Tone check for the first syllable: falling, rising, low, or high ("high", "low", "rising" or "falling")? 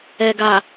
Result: low